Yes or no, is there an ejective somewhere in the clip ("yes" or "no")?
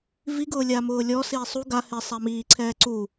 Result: no